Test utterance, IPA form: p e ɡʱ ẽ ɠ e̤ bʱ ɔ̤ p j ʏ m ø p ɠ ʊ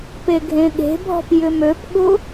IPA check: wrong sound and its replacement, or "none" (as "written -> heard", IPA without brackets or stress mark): none